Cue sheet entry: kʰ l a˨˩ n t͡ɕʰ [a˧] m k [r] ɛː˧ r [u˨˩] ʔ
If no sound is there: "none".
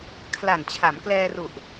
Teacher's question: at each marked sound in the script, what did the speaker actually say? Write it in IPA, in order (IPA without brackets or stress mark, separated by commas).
a˩˦, l, u˨˩